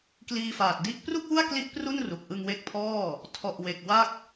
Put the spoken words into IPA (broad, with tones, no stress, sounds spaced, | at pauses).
k l iː˧ f aː˨˩ t̚ d i˦˥ ʔ p r u˥˩ k̚ w u˥˩ a̯ k l i˦˥ ʔ p r u˥˩ n r u˨˩ k̚ ʔ ɯ˧ ŋ w e˦˥ k̚ pʰ ɔː˥˩ | tʰ ɔ˨˩ ʔ w e˨˩ k̚ w a˥˩ k̚